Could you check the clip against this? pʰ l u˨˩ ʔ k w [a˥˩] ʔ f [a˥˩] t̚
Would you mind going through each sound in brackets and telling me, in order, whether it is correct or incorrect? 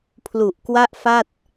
correct, correct

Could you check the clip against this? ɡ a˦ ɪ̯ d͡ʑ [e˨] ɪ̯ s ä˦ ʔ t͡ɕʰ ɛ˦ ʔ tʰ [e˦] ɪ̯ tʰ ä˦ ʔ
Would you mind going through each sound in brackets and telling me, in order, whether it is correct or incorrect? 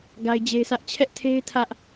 incorrect: e˦, correct

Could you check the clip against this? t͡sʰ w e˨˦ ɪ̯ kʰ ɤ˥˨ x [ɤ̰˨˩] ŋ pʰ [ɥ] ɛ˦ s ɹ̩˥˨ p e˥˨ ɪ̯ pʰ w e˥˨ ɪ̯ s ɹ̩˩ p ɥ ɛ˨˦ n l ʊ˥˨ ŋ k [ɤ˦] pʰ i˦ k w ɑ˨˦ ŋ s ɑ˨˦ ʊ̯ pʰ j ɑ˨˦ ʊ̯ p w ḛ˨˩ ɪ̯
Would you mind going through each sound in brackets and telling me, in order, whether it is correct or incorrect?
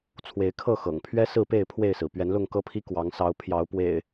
correct, correct, correct

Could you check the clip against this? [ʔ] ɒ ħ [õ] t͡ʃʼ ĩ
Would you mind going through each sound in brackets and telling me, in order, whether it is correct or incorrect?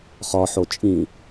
incorrect: χ, incorrect: o

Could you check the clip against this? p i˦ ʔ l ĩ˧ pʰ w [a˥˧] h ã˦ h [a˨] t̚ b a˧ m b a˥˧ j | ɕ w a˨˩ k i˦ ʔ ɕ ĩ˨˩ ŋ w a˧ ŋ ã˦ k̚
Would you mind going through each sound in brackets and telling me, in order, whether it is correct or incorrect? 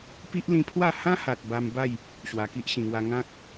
correct, correct

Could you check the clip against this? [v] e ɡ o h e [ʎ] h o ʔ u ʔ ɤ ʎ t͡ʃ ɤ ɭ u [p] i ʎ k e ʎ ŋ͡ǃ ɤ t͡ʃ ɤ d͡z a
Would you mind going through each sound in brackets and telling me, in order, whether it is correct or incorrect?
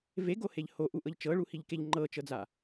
correct, correct, incorrect: h

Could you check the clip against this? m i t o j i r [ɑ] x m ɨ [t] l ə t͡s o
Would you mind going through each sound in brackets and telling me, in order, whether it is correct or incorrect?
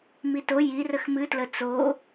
incorrect: ə, correct

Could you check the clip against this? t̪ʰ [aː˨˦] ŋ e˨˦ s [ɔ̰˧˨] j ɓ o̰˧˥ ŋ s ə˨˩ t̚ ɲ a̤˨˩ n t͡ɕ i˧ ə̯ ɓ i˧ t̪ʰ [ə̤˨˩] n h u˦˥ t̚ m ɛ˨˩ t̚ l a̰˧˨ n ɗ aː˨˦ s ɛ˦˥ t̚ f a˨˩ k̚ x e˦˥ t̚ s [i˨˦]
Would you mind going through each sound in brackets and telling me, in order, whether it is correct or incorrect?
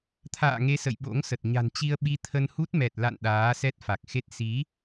incorrect: a̰ː˧˨, incorrect: ə̰˧˨, incorrect: ə˧, correct

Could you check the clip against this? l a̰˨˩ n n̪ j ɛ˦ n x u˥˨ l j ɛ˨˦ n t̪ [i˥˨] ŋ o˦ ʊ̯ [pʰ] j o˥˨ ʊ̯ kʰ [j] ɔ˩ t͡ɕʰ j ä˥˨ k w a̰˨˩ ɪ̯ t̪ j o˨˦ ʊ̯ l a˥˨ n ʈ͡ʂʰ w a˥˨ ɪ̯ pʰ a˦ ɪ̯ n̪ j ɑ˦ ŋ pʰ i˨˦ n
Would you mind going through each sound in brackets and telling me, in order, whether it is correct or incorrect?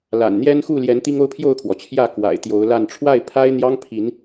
incorrect: i˦, correct, incorrect: w

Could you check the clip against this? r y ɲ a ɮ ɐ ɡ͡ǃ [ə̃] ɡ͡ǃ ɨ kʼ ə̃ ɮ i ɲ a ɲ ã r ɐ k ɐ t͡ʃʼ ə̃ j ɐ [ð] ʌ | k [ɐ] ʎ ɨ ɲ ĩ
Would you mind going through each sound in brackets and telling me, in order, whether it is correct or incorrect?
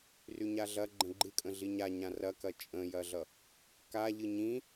correct, incorrect: ɮ, incorrect: a

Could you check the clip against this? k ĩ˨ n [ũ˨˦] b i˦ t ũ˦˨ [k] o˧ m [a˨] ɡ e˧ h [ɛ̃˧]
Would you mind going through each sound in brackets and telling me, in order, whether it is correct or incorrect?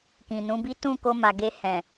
correct, correct, correct, incorrect: ɛ̃˨

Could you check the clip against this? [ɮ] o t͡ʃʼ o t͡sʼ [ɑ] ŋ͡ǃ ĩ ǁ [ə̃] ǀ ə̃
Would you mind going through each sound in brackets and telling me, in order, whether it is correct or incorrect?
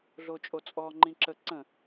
correct, incorrect: ɔ, incorrect: ə

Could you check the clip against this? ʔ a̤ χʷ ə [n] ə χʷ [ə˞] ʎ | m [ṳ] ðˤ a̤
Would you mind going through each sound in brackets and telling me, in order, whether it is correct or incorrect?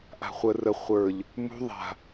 incorrect: r, correct, correct

